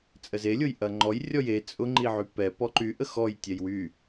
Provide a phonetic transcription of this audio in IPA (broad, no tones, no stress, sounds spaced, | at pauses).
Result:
t͡sʼ ə z e lʲ ʊ j ʔ ɐ ŋ͡ǃ ɔ j rʲ ɔ j e t͡sʼ ʊ ŋ͡ǃ i ʕ y p ɛ p ɔ ǃ y ʔ ə x ɔ j tʲ ɛ j w y